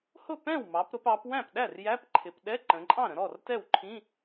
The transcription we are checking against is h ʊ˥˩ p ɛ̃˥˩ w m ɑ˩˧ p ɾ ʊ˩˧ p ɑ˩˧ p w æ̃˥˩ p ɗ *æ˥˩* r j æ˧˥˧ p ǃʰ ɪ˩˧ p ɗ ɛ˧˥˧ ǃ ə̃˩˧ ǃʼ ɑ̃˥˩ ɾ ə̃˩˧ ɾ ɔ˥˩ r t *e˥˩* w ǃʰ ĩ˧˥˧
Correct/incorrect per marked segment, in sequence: correct, incorrect

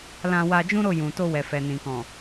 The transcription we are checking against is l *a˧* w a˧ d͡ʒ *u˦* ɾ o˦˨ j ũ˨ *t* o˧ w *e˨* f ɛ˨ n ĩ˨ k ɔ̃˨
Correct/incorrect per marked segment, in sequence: incorrect, incorrect, correct, incorrect

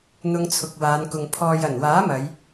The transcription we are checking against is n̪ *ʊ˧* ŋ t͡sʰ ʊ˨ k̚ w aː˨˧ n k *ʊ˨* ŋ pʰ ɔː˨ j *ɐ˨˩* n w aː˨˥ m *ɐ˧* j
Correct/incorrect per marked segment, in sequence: correct, correct, correct, incorrect

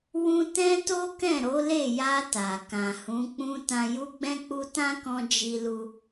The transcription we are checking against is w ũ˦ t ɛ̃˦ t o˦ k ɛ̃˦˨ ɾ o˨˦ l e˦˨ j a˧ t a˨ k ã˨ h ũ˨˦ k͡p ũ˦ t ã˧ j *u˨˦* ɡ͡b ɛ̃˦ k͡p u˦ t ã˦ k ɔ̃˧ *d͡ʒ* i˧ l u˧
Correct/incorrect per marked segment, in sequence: incorrect, correct

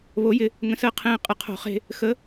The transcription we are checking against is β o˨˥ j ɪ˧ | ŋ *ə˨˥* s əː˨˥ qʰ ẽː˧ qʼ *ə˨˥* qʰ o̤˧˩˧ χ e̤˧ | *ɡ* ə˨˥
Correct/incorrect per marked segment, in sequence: incorrect, incorrect, incorrect

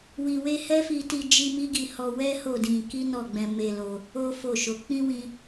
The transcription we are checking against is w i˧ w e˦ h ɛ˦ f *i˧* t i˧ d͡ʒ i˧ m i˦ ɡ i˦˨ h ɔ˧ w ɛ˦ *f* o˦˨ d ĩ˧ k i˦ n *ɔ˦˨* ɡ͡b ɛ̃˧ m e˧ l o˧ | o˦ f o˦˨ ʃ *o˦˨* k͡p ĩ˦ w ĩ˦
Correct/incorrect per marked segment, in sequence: correct, incorrect, correct, incorrect

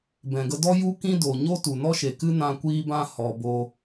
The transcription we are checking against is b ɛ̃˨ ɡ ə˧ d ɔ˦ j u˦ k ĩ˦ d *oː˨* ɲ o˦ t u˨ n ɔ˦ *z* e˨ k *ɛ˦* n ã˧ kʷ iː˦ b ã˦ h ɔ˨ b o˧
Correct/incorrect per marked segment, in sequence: correct, incorrect, incorrect

